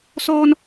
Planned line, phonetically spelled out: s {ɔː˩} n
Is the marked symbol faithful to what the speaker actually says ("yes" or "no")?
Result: no